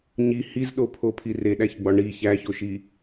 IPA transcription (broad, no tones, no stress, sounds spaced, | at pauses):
ɲ i h i z ɗ o pʰ o pʰ i r e ɗ æ ç ɡ͡b ɒ ɳ i ç æ ç o ʃ i